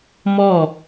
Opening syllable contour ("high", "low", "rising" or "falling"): falling